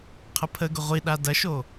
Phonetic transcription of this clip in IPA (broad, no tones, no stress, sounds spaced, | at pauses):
qʰ ə pʰ ə ɡ ʊ ʁʷ i ɗ a d ɐ ʃ o